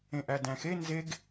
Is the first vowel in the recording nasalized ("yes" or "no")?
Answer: yes